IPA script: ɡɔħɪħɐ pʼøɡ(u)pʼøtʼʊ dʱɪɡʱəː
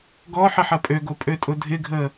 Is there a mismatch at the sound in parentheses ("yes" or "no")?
yes